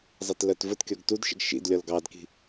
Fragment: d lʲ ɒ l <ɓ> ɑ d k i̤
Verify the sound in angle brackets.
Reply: incorrect: ɡ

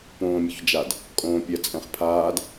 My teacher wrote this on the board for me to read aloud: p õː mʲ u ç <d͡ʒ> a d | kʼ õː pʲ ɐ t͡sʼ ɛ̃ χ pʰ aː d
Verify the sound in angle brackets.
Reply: correct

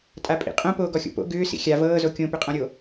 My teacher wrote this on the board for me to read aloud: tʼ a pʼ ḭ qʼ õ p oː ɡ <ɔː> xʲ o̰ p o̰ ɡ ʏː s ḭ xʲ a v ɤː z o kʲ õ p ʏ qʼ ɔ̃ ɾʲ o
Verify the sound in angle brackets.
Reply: incorrect: ɔ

